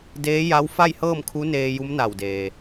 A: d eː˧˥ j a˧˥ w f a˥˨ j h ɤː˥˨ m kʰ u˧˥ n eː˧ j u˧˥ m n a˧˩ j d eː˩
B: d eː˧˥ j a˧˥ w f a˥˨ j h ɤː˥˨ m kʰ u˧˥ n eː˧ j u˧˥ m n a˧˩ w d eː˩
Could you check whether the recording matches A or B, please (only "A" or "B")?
B